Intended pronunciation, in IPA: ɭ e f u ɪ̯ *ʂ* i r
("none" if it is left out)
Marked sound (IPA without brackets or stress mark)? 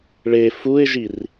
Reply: ʒ